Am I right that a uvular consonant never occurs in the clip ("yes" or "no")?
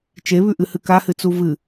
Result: yes